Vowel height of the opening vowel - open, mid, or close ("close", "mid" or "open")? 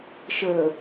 mid